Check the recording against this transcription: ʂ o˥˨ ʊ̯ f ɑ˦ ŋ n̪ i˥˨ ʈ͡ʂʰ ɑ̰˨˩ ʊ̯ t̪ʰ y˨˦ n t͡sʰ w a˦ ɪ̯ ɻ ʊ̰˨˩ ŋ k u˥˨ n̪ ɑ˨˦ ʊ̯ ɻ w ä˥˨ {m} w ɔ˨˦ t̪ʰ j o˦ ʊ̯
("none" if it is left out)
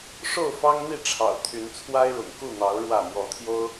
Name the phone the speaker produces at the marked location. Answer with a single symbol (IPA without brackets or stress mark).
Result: m